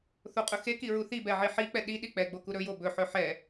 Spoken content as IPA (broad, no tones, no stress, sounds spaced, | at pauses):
θ o qʼ ɵ x e k i ɹ u θ i b ɛ ʕ i ħ i k͡p ɛ ɗ i ɗ i k͡p ɛ ɡ͡b o k u ɾ ɵ j o b ɵ ħ ɵ ħ ɛ